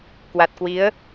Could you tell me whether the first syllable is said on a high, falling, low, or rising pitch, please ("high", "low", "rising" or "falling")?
low